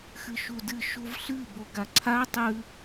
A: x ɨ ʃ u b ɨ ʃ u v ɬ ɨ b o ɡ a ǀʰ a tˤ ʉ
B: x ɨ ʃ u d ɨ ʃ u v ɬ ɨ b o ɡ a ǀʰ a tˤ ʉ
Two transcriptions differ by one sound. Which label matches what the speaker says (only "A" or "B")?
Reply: B